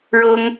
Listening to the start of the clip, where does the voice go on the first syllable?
high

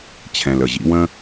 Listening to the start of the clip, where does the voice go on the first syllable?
low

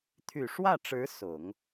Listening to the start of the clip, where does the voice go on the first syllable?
low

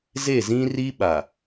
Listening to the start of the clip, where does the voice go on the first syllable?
falling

